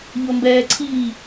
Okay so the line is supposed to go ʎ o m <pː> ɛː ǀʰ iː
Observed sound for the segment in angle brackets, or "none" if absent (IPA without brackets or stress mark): b